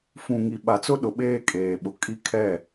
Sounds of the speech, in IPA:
f ũ˨ ŋ i˨ ɓ a˨ t͡s ʊ˦ ɗ ʊ˨ ɓ eː˦ kʼ eː˨ ɓ ʊ˨ kʼ i˦ kʰ ɛ˦˨

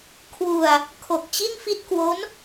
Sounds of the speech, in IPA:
kʰ w u˧ a̯ | kʰ o˨˩ k̚ t͡ɕ i˥˩ n f i˥˩ t̚ k w o˦˥ n

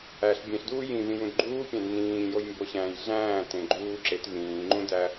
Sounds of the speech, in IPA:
æ ɬ bʲ ẽ ɬ d uː j ĩ v ĩ j ũ d ɡ͡ǃ uː pʲ æ̃ d n ĩː j o j m b o ɕ æ̃ː j ɮ æ̃ː t ẽ ɡ͡ǃ uː ǁ e t v ĩː ŋ͡ǃ ũ d æ

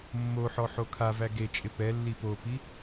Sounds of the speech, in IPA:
mː o ħ ɔ ħ o kʰ a v æ ɡ e t͡ʃʼ ɪ p ɛ lː i p o p i

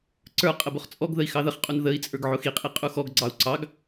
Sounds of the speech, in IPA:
ǀ ə˞ qʼ ə b ʊ χ t͡sʼ ɔ ɡ ð ə i̯ x ɑ ð ə χ qʼ u n ð ə i̯ t͡sʼ ə˞ ɡ ʕ ʊ x i qʼ i qʼ u x ɔ ɡ ɡ͡ǀ ɑ u̯ ǀ ɑ ɡ

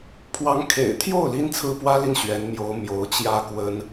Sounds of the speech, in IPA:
pʰ w ɑ˧˥ ŋ kʰ ḛ˨˩ ɪ̯ t̪ʰ j o˥˩ ʊ̯ l i˥ n t͡sʰ ɹ̩˥ p w ä˥ l i˥˩ n ɕ ɥ ɛ˧˥ n m j o˧˥ ʊ̯ m j o˧˥ ʊ̯ t͡ɕ j ä˥ k w ə˥ n

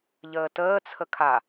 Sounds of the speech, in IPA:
ʎ əː t əː t͡sʰ ə kʰ a

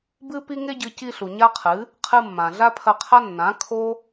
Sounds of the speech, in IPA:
b ɨ˦ p i˦ ŋ e˦ ɟ ɨ˧ c i˧ ɬ u˨ ɲ a˦ qʰ ɨ˨˦ | qʰ ɨ˧ mː ã˨ ɮ a˦ pʰ ɐ˧ qʰ a˦ nː ã˨˦ kʰ o˦

